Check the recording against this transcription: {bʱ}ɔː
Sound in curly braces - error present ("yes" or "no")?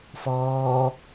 yes